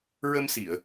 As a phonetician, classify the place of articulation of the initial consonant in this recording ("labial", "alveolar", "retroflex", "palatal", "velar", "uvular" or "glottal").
alveolar